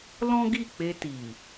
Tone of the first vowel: high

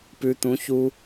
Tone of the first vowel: low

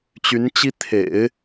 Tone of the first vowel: rising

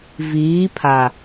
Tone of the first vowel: rising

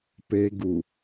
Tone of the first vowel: high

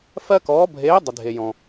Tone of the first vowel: high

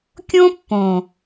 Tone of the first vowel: high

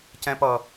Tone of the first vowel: high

